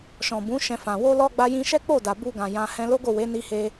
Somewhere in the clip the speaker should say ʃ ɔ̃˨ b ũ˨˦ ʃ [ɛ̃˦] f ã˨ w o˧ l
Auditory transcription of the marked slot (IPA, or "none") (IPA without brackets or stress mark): ɛ̃˧